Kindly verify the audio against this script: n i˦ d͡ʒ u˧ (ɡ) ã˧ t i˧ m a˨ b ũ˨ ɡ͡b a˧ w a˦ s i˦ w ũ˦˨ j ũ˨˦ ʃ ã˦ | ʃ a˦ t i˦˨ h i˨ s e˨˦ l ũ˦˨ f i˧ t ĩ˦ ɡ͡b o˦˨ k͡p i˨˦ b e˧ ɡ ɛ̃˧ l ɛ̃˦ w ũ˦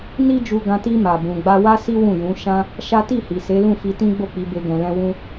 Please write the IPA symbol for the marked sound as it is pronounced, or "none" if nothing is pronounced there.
ɡ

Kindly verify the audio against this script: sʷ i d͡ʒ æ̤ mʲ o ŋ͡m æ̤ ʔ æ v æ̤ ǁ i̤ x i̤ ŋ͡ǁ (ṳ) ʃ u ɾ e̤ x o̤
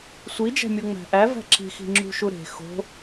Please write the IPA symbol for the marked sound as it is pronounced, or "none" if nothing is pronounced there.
ṳ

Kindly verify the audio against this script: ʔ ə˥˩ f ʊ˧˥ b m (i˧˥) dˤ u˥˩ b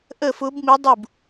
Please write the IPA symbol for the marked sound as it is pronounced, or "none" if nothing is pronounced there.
i˧˥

